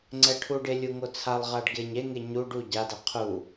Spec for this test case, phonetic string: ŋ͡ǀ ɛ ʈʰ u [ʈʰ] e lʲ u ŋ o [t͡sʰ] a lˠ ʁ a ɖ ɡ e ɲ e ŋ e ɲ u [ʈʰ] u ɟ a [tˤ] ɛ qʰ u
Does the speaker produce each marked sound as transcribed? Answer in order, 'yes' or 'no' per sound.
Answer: no, yes, no, no

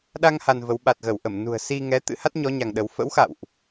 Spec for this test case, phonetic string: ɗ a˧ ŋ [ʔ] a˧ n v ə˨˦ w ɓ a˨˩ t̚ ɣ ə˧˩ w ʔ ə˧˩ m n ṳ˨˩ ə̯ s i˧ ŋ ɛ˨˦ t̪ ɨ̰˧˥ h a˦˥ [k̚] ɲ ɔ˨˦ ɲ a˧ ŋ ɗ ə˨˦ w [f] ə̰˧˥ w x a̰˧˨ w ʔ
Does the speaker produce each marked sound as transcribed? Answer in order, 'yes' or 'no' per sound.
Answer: no, no, yes

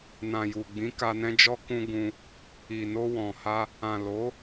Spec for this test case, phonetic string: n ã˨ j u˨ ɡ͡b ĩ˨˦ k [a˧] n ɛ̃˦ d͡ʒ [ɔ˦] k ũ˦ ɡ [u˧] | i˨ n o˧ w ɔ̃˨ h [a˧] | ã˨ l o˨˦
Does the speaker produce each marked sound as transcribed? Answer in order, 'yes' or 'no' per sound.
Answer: yes, yes, no, yes

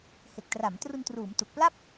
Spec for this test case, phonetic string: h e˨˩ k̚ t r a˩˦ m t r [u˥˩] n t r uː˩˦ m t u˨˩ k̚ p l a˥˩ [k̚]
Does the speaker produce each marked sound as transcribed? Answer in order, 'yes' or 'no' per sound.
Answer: no, no

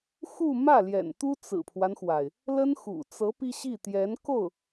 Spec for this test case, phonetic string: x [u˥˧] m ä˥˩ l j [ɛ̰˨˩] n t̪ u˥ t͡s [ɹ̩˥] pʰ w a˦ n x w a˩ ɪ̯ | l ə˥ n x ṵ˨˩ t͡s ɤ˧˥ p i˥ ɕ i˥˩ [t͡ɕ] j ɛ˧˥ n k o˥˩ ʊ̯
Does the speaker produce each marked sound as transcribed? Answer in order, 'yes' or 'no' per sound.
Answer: yes, yes, no, no

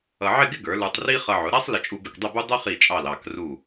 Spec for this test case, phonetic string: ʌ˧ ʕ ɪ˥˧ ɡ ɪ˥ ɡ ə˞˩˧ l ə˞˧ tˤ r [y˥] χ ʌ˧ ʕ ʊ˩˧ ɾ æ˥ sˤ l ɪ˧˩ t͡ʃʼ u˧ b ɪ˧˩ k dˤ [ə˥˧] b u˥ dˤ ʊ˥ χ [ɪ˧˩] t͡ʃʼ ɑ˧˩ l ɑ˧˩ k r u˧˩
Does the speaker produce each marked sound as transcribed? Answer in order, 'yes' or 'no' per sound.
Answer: no, yes, no

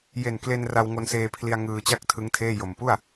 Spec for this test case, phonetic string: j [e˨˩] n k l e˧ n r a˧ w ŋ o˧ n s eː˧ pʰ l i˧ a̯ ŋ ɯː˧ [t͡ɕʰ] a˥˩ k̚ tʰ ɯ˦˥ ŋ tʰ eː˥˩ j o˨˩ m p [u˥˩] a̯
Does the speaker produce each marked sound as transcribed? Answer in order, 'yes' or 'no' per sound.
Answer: yes, no, yes

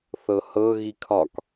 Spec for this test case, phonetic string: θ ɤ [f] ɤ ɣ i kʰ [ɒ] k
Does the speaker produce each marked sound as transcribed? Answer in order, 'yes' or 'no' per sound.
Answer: no, yes

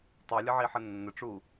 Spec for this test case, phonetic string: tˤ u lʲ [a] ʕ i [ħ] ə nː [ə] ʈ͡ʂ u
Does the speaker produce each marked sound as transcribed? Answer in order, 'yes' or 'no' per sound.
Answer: no, yes, yes

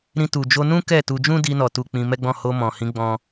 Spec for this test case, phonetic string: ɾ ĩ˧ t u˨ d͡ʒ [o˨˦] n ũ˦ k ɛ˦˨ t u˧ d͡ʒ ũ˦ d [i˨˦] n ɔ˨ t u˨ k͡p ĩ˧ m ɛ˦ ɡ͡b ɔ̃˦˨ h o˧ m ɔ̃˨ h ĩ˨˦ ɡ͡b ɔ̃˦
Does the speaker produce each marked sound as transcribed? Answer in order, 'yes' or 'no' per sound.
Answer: no, no

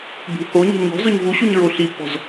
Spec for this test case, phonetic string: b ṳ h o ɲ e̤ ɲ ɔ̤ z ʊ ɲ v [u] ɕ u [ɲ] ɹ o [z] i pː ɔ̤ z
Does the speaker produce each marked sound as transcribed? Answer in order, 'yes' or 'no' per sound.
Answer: yes, yes, no

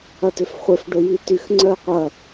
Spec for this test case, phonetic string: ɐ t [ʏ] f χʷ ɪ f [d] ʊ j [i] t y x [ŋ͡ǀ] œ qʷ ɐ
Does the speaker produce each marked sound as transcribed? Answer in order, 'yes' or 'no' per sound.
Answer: yes, no, yes, yes

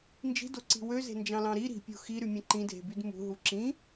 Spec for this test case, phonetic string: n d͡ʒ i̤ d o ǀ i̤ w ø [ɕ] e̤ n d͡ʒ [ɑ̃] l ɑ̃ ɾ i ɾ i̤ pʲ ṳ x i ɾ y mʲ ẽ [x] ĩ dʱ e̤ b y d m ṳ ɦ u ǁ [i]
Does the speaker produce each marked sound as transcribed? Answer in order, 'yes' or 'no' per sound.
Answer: no, yes, no, no

